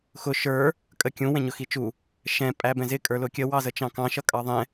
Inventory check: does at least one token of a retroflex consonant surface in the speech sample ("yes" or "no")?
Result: no